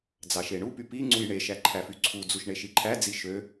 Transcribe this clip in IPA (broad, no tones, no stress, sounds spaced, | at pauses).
d͡z ɑ ʃ e ɳ u p y p i ŋ͡ǀ u j ɳ e ʃ æ ǃʰ æ f y ǀʰ u d͡z u ʃ ɳ e ʃ i ǃʰ æ d͡z i ʃ ø